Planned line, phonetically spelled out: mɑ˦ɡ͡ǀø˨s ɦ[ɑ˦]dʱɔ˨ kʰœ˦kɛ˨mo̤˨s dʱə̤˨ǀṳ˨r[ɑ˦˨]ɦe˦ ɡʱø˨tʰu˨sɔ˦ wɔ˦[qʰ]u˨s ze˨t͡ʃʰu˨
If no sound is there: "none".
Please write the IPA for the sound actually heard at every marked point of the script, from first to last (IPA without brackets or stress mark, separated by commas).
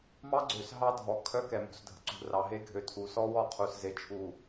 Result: ɑ˦, ɑ˨, qʰ